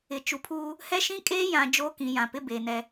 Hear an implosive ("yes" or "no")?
no